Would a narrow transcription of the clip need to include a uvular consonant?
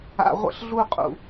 yes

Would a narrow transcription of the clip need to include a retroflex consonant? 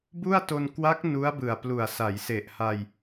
no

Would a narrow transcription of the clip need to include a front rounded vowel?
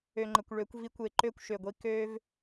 yes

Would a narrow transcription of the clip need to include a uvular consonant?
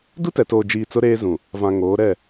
no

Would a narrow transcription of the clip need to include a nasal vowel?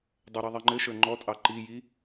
no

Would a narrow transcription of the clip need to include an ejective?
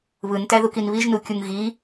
no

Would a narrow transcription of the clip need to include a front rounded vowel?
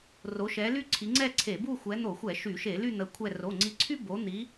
yes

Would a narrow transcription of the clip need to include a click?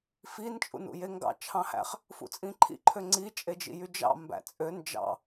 yes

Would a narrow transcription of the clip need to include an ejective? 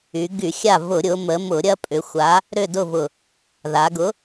yes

